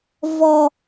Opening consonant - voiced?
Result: yes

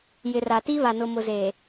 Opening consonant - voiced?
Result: yes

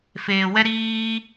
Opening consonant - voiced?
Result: no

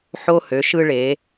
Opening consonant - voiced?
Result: no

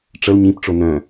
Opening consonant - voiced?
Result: no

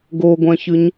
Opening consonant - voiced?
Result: yes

